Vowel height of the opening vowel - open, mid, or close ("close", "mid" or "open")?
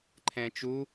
mid